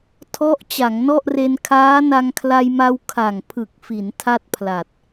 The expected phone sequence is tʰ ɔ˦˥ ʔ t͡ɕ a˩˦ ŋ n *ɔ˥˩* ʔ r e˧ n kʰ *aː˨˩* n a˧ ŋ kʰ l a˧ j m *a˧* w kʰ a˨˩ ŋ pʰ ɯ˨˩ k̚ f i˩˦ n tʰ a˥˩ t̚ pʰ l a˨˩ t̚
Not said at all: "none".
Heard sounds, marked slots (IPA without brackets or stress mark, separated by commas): ɔ˥˩, aː˦˥, a˧